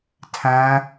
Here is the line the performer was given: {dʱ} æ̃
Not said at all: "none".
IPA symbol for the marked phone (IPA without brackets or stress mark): tʰ